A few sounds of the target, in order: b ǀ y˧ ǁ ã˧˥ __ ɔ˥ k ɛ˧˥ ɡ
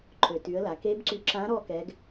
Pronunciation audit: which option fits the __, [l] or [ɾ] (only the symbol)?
ɾ